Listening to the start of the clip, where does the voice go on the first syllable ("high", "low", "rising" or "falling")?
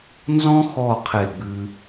high